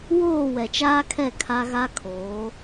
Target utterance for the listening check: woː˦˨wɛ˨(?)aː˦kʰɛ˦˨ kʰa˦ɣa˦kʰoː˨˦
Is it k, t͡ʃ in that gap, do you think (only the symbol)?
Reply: t͡ʃ